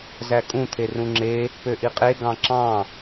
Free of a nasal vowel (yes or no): no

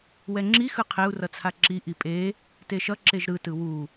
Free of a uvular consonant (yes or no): no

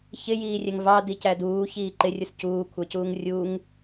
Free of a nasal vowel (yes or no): yes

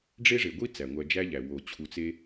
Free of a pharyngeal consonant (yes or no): yes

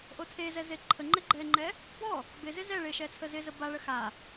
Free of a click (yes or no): no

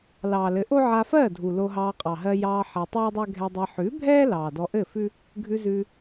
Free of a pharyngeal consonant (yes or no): no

